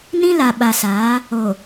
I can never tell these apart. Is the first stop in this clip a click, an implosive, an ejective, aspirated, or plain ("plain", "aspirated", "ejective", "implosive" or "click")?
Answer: implosive